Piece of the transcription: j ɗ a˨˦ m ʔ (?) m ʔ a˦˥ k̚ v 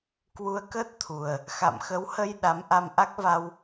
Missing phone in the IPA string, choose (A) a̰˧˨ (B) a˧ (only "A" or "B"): B